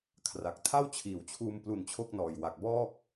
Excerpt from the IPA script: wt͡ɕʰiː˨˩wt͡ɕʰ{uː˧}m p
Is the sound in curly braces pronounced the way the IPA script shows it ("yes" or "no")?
yes